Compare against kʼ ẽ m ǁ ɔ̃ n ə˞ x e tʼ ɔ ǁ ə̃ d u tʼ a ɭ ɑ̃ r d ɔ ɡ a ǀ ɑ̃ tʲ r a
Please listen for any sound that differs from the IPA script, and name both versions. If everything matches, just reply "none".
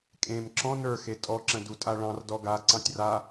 none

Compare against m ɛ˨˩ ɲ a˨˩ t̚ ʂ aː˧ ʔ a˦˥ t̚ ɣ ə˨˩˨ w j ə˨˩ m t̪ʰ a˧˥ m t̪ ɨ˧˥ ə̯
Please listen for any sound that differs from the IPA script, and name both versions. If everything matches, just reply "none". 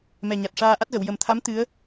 none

